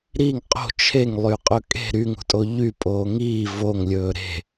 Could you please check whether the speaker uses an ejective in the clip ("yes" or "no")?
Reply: yes